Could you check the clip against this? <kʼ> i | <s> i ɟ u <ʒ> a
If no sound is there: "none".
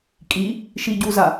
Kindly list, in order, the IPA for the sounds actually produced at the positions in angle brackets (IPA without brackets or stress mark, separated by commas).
kʼ, ʃ, z